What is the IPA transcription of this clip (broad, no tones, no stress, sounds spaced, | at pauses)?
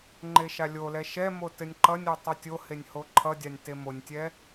ŋ͡ǃ e ʃ a lʲ o l ɛ ʃ ɛ m o t ɘ nʲ ǃ ʌ nʲ o tˤ ʌ tʲ o h e nʲ h o ǃʰ ʌ dʲ a nʲ t e m o nʲ tʲ ɛ